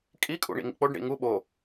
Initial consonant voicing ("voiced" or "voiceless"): voiceless